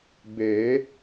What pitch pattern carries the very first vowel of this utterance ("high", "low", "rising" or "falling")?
rising